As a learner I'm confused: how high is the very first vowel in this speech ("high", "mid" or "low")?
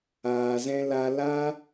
low